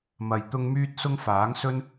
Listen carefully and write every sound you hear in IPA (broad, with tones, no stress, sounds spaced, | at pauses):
m ɐ˧ j t̪ ʊ˥ ŋ m yː˥ t̚ s ʊ˥ ŋ f aː˨˥ ŋ s ɵ˥ n